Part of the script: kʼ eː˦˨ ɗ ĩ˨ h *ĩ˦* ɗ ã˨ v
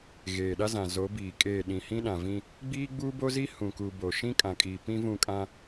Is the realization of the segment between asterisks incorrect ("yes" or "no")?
no